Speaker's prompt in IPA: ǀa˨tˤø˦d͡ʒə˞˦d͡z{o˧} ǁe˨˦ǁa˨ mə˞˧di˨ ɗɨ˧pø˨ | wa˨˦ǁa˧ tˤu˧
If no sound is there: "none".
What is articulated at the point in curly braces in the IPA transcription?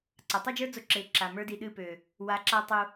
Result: o˧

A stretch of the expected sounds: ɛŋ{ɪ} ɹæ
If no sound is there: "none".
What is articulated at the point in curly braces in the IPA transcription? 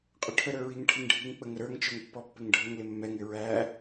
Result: ɪ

